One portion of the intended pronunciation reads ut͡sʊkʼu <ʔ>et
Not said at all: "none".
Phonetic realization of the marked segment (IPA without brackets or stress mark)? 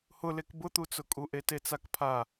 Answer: ʔ